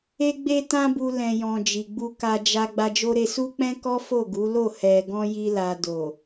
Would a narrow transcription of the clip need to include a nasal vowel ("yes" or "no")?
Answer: yes